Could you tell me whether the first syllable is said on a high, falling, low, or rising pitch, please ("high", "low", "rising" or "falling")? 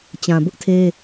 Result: low